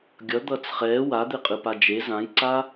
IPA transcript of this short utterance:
ɡʲʌ d̪ʌːt͡sχɛː wad̪eqʼɯpa d͡ʒe zãjǀa

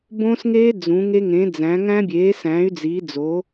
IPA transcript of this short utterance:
bõ˦˥sŋeː˦˥ d͡zũ˨˥ŋe˦˥ŋẽ˨˥d͡zæ̃˨˥ ŋæ̃˦˥bʲeː˨˥sæ̃ː˨˥y̯ d͡ziː˨˥d͡zo˨˥

